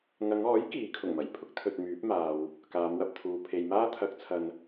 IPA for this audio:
ŋ ɐ˨˧ ŋ ɔː˨˥ j k iː˨˥ kʰ ʊ˨˩ ŋ m ɐ˨˩ j pʰ ʊ˥ k̚ t̪ʰ ɵ˨ t̚ m yː˨˥ p̚ m aː˨ w | k aː˨˧ m w ɐ˧ p̚ t̪ʰ uː˨ pʰ e˨ j m aː˥ t̪ʰ ɐ˨˥ k̚ t͡sʰ ɐ˨ n

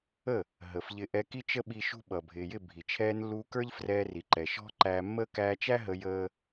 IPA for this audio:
ə˦˨ | ɦ ə˨ f ʎ ɪ˧ ʔ ɛ˧ k i˦ t͡ʃ ə˦ ɓ i˧ ʃ ṳ˦ ɓ ʌ˨ bʱ ɪː˨ j ɪ˦˨ bʱ i˨ t͡ʃʰ ɛː˧ n lː uː˧ k ə˞˦ ʎ f r ɛː˧ r i˨ ǃ ɛ˨ ʃ ɔ̤˦ ǃ æː˧ mː əː˦ k æː˧ t͡ʃ æ˦ ɦ ə˧ j əː˦

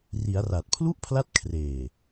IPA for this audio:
r i˩˦ a̯ r a˨˩ t̚ pʰ l u˥˩ ʔ pʰ l a˦˥ t̚ kʰ r eː˨˩

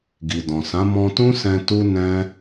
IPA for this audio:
ɡ i˨ d ɔ̃˨ s ã˨˦ m ɔ̃˧ t ũ˦ s ɛ̃˧ t u˦ n ɛ̃˦

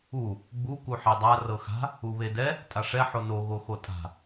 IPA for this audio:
u | ɡ͡b u k u ħ e dˤ a r ɤ x a̤ | u β e d ɛ | tʼ a ʂ ɛ ħ o n o ɣ o x o tʼ a̤

